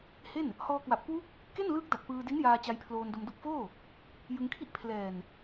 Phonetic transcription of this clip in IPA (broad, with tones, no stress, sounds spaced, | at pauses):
h e˥˩ n | h ɔː˧ k w a˨˩ p̚ k w u˦˥ k̚ | k e˥˩ n l ɯː˦˥ k̚ d a˨˩ k̚ p ɯː˧ d i˦˥ n j aː˧ t͡ɕ a˧ j pʰ l oː˧ n d o˧ m d o˦˥ k̚ f oː˥˩ | j ɯ˧ ŋ kʰ i˥˩ ʔ pʰ l ɛː˨˩ n